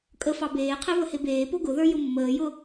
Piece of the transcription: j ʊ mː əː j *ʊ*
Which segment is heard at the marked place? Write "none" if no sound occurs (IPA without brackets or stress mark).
ʊ